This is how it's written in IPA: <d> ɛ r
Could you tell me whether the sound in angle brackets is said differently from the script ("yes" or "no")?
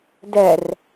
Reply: no